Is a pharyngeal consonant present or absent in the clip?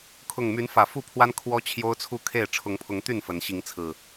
absent